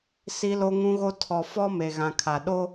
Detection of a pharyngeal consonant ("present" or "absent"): absent